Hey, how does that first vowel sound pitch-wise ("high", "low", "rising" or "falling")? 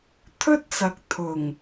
high